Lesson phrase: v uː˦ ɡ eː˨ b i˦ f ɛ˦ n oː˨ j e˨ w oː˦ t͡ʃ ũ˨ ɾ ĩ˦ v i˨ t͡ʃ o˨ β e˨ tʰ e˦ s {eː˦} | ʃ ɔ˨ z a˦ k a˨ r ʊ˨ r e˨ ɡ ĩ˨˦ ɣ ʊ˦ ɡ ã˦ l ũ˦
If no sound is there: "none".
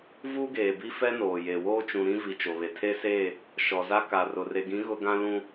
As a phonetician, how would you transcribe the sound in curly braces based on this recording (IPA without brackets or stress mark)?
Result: eː˦˨